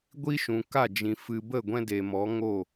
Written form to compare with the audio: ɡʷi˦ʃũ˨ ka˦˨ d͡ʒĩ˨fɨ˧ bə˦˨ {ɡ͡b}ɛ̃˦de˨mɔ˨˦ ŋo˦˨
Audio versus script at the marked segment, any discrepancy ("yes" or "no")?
yes